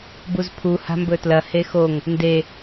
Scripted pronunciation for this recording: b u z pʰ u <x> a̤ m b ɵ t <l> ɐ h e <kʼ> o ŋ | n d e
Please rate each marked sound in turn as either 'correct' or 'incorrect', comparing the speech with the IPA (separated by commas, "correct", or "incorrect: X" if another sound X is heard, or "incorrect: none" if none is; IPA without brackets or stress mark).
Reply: incorrect: h, correct, incorrect: x